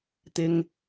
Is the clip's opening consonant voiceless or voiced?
voiceless